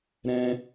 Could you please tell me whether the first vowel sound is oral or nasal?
nasal